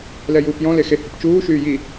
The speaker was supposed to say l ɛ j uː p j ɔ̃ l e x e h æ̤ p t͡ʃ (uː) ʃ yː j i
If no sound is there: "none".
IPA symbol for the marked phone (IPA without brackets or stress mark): uː